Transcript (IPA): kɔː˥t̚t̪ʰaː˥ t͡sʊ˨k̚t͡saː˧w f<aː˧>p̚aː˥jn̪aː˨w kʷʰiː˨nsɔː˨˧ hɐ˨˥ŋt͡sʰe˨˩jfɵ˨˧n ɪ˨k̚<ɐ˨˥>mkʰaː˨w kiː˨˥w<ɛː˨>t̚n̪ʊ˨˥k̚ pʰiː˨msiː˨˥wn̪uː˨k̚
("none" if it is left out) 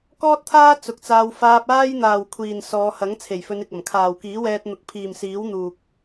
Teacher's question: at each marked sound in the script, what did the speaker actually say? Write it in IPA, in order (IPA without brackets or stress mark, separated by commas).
aː˧, ɐ˨˩, ɛː˧